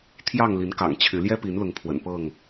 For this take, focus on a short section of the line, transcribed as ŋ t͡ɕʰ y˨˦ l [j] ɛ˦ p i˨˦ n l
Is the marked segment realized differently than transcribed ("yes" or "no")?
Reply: no